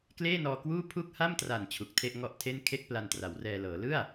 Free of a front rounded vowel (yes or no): yes